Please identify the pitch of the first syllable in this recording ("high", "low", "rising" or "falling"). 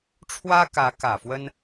high